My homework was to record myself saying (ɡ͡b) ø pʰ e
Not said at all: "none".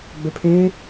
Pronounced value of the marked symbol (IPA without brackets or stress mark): ɡ͡b